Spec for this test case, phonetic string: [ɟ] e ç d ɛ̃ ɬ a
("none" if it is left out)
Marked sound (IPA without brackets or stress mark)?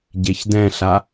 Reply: ɟ